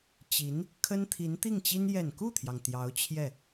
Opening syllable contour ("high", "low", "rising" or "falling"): rising